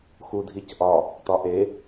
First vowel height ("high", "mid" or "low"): high